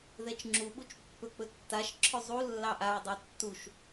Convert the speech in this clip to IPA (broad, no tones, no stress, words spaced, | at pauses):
ðɛt͡ʃŋ͡ǁuɓut͡ʃ pːɵk͡pɵ tːaʃ ǁʰɵzˤu lːɑʔaɹ dˤɑtːuʃ